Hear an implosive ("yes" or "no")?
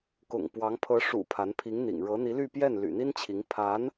no